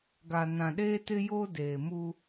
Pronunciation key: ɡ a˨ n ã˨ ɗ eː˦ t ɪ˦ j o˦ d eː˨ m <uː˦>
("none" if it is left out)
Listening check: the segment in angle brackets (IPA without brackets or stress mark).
u˦